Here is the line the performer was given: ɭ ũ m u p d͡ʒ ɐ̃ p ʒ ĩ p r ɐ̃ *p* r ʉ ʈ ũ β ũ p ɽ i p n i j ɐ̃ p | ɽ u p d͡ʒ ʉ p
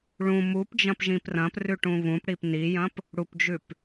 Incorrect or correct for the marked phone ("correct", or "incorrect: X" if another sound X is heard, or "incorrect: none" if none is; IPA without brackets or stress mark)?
correct